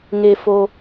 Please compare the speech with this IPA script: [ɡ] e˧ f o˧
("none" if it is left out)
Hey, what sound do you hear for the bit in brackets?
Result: ŋ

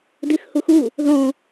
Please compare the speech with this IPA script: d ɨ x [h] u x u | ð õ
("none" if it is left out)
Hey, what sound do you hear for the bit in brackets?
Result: h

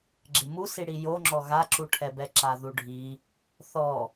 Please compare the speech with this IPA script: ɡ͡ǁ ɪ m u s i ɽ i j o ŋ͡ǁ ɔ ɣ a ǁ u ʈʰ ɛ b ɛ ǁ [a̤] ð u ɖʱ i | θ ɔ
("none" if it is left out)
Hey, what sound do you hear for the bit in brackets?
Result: a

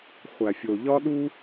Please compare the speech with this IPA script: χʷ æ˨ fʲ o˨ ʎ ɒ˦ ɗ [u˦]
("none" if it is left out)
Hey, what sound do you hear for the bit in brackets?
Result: u˦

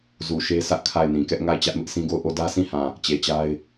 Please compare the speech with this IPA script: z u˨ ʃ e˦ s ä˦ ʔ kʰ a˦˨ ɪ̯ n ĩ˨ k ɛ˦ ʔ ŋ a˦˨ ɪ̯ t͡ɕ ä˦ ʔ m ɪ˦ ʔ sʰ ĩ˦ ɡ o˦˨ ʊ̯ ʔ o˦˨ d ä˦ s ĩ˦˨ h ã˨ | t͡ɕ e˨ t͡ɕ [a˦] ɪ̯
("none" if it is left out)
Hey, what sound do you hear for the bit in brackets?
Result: a˦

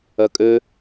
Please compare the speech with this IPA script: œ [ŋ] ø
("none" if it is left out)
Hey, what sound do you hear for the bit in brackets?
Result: kʼ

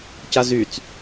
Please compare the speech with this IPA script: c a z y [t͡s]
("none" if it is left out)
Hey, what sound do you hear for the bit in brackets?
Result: t͡s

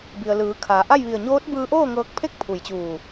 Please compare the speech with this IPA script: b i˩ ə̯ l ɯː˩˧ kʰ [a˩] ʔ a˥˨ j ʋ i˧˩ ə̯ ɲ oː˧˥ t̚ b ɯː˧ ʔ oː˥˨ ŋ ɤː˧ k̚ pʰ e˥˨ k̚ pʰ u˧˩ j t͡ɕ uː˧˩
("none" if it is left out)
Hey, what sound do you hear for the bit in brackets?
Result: a˩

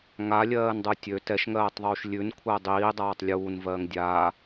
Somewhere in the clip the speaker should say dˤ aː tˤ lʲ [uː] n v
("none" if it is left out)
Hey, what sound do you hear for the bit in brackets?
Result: uː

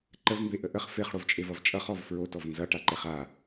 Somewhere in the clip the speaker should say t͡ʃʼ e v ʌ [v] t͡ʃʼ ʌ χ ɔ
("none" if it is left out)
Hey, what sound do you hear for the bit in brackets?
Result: v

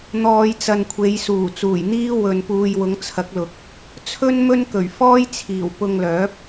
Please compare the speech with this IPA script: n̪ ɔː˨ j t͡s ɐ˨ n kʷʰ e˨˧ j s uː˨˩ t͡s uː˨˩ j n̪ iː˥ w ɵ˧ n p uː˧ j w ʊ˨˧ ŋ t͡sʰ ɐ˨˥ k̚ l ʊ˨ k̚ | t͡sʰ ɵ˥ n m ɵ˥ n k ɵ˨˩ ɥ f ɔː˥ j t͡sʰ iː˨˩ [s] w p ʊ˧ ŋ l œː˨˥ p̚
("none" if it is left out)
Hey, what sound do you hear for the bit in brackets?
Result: none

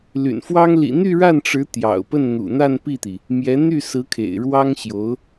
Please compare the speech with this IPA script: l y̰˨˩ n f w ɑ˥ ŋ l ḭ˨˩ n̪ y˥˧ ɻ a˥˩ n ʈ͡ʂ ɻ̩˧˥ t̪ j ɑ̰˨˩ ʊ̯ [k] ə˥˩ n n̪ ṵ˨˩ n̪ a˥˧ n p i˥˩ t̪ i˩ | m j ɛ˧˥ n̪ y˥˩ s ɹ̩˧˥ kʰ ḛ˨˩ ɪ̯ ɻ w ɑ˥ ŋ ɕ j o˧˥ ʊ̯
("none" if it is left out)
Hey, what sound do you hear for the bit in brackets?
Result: p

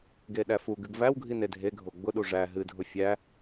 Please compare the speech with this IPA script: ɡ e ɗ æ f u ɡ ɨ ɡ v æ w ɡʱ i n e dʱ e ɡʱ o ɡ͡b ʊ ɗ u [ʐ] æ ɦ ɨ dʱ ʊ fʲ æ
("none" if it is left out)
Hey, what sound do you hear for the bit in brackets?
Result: ʐ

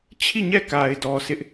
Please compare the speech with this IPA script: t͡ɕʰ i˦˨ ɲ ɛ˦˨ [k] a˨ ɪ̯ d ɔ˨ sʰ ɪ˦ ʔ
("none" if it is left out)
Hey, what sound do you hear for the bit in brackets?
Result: k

